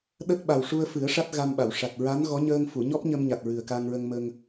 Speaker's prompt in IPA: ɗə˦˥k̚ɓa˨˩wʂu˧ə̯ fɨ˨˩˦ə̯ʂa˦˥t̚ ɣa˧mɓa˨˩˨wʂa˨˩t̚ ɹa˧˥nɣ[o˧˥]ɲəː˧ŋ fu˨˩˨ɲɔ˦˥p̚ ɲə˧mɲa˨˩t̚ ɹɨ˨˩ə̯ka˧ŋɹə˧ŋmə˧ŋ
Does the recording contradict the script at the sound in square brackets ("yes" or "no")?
yes